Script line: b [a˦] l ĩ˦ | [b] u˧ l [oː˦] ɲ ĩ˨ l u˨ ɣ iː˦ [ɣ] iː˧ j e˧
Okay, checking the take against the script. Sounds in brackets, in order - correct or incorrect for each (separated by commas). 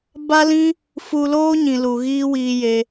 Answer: correct, incorrect, correct, incorrect